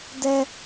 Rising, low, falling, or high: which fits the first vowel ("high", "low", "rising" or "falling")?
high